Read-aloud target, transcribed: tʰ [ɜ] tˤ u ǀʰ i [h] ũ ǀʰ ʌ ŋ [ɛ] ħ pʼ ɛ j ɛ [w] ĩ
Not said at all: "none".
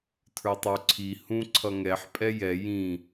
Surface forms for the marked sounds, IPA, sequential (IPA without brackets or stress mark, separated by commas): ə˞, h, ɛ, j